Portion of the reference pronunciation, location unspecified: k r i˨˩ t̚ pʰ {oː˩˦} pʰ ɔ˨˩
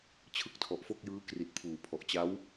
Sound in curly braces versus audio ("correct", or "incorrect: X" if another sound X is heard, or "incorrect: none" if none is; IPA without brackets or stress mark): incorrect: uː˩˦